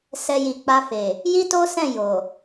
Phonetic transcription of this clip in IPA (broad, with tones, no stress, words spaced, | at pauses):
sɛ˧ji˨k͡pa˧fe˨ | ji˦to˦sɛ̃˦˨ jo˨